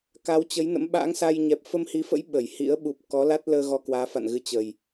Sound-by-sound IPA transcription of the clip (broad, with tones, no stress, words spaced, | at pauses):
ka˨˦wt͡ɕə˨˦jnə̰˧˥m ɓa̰ː˧˥ŋsa˧jɲɛ˨˩p̚ fə˧mhi˨˦fə̰˧˥j ɓə˧˩jhḭ˧˥ə̯ ɓu˨˩p̚kɔ˨˦la˦˥t̚ləː˧ ɣɔ˧kwaː˨˦fa̰˧˨n ɣɨ˨˦ t͡ɕə˨˩j